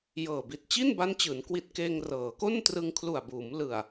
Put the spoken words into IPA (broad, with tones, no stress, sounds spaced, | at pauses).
j ɤː˨˩ b i˨˩ t̚ t͡ɕ i˥˩ n b a˦˥ n t͡ɕ ɯː˩˦ n k w i˨˩ t̚ k eː˧ ŋ r ɤː˩˦ k o˥˩ n t r ɯ˧ ŋ kʰ l u˨˩ a̯ b uː˩˦ m l ɯ˨˩ a̯